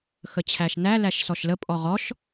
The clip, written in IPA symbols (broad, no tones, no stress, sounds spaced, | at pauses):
x ə t͡ɕʰ æ ʃ n æ l æ ʃ s ɔ ʃ l ə pʼ ɔ ʁ ɔ ʃ